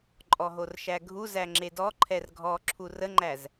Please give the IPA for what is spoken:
ǃʼ ɔ ɦ o r ʃ æ ɡʱ u z æ ŋ͡ǁ e d ɔ ǃʰ ɛ r ɡʱ ɔ ǁʰ u r ə ŋ͡ǃ æ z

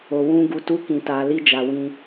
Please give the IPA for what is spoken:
o˨ w ũ˧ ɡ u˧ t u˦ k ĩ˧ t a˧ l i˦ d͡ʒ a˧ w ĩ˦

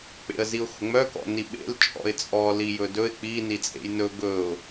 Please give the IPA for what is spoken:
k͡p ḛ ə̯ z i ʊ̯ x ʊ ŋ͡m œ k ɔ̰ n i ɓ ḛ l t͡ʃʼ ɔ̰ ɪ̯ t͡sʼ ɔ l i j ɵ d ɵ ɪ̯ k͡p i n i t͡sʼ ḛ j n ɵ ɡ ɵ ʊ̯

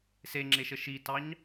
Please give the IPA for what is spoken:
s e ŋ͡ǁ e ʃ ə ʃ i t ɑ ɲ

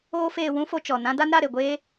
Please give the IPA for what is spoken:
oː˦ f eː˧ w ũ˦ f o˧ t͡ʃ ɔ˨ n ã˦ d a˦ n ɾ a˦˨ ɾ e˨ ɡʷ eː˦

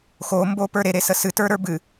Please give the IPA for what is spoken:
x o m b o p ə˞ ɾ e ɾ e s ə s ɨ t ə˞ ɾ ə˞ b ɨ

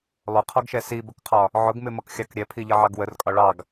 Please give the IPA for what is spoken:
lˠ ʊ qʰ ɔ ɡ ʃ ɛ s i b ə k qʰ ɒ | ʕ ʊ ɡ m ɪ m ʌ k xʲ ɑ k ɾʲ ɛ pʰ i ʎ ʌ ʕ ɑ ɡ w ə r kʼ ɒ ɭ ɑ ɡ

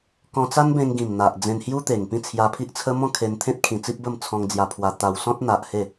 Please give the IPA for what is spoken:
k ɔ̃˧ t͡s a˦ n b ẽ˧ ŋ ɡ ĩ˨˩ m n̪ a˨ ʔ d͡z ẽ˧ n h j u˦ t̪ e˨˩ ŋ p ĩ˥˧ t͡sʰ j a˧ pʰ i˦ ʔ t͡sʰ ə˦ m ɔ̃˥˧ kʰ e˧ n t̪ʰ ẽ˦ t̚ kʰ ĩ˧ t͡s i˦ p̚ b ə˥˧ m t͡sʰ ɔ̃˧ ŋ d͡z j a˧ pʰ w a˧ t̪ a˧ w s ɔ̃˦ t̚ n̪ a˨ ʔ h e˥˧

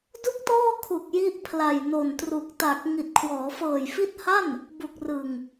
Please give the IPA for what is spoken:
d u˥˩ k̚ t ɔː˥˩ kʰ u˨˩ k̚ j i˦˥ ʔ pʰ l a˨˩ j n o˨˩ n t r u˨˩ k̚ t a˨˩ k̚ ŋ i˨˩ t̚ kʰ w ɔː˩˦ f ɤː˨˩ j f i˦˥ t̚ h a˥˩ n | b u˨˩ k̚ r ɯ˨˩ ŋ

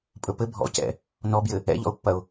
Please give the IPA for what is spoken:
pʼ ɵ p ɘ bʱ ɔ̰ c ɛ̰ | n ɔ b j ɘ | ɛ̰ ʎ ɔ̰ ʊ̯ pː ɐ ʊ̯

